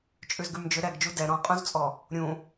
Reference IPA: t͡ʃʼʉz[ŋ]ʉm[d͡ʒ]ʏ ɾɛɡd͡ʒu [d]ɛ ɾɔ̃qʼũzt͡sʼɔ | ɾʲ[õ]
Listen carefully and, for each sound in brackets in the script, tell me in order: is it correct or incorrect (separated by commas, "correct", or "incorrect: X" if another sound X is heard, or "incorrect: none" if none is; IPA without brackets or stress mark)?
incorrect: ɡ, correct, correct, incorrect: ũ